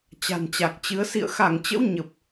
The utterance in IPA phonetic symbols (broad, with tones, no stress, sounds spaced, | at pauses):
t͡ɕ a̤˨˩ n t͡ɕ a˨˩ k̚ t͡ɕ ɨ˨˦ ə̯ s ḭ˧˨ ə̯ x a˧˩ ŋ t͡ɕ ə̰˧˥ w ɲ ə˨˩ p̚